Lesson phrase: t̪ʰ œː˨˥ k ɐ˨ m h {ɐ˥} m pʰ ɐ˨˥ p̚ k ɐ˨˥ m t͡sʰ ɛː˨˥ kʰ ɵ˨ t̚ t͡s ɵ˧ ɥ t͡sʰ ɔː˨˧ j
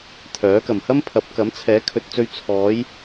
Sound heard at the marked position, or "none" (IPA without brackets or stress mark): ɐ˥